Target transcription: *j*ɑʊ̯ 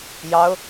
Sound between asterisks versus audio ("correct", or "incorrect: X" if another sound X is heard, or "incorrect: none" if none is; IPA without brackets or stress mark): correct